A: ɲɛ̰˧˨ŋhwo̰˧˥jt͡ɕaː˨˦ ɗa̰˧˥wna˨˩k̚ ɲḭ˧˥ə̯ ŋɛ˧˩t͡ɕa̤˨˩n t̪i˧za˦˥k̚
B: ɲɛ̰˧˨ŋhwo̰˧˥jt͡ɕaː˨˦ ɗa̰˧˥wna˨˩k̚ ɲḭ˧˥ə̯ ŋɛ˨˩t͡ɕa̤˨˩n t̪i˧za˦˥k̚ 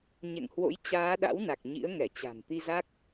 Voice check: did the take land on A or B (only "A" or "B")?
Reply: A